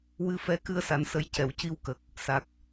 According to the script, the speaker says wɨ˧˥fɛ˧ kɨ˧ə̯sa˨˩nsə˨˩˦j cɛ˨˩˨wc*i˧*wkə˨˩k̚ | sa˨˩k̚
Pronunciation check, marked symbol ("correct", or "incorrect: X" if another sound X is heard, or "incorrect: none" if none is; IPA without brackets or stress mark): correct